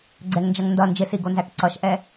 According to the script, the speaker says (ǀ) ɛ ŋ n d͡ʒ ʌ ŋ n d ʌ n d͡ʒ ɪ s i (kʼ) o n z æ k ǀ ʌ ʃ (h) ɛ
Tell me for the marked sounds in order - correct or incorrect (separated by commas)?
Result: incorrect, incorrect, incorrect